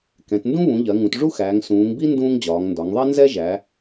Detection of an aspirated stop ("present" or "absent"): absent